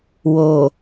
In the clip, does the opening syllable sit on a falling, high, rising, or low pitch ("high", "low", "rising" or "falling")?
low